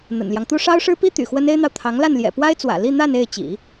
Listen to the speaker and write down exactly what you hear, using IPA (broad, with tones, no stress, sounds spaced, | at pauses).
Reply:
n̪ ə̰˨˩ n l j ɑ˦ ŋ t̪ u˥ ʂ ɑ˥ ʊ̯ ʂ ɻ̩˥ p i˥ t̪ y̰˨˩ x w ə˥ n e˥ ɪ̯ n̪ ɑ˨ ʊ̯ t̪ʰ ɑ˧˥ ŋ l a˥˩ n l j ɛ̰˨˩ p w a˥ ɪ̯ t͡s w ä̰˨˩ l i˥˧ n̪ a˥˧ n e˥˩ ɪ̯ t͡ɕ ḭ˨˩˦